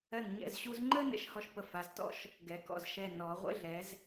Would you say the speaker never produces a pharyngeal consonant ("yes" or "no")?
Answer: yes